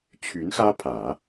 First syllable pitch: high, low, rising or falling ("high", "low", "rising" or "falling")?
rising